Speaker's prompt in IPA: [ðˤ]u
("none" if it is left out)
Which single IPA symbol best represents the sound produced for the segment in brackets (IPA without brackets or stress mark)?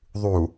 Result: ðˤ